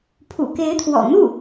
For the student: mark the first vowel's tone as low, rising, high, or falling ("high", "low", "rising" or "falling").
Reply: low